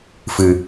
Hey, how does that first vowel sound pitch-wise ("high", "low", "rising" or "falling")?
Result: low